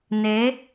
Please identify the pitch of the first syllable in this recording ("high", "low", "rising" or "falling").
rising